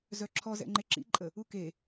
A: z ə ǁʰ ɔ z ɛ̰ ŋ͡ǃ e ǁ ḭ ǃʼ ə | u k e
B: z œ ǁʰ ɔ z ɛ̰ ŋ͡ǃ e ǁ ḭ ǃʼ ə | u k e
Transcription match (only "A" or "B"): B